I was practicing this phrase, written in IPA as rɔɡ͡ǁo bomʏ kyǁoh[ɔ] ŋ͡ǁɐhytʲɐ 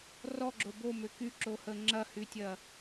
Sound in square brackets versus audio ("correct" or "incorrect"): incorrect